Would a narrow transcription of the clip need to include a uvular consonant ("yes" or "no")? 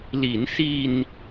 no